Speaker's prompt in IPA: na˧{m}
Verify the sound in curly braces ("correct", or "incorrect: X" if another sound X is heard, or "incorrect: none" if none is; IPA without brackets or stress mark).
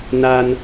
incorrect: n